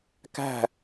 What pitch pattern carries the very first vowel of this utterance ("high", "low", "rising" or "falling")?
falling